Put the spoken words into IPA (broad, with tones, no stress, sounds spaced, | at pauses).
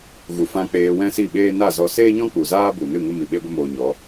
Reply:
ɣ u˨ f ã˧ k͡p eː˧ w ɛ̃˦ s i˦˨ ɓ eː˦ n a˦˨ z ɔ˧ s eː˦ ɲ ɔ̃˦ k͡p u˨ z aː˦ b u˨ n ɨ˦˨ ŋ ə˦ m i˨ ɓ e˦ ɡʷ ə˦ m oː˧ ɲ ɔ˨˦